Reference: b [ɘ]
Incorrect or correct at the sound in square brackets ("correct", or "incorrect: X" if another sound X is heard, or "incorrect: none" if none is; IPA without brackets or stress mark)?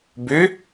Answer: incorrect: ø